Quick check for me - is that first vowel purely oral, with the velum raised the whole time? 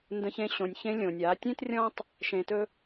no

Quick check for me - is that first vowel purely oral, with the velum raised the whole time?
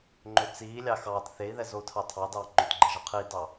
yes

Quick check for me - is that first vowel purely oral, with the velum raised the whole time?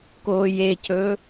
yes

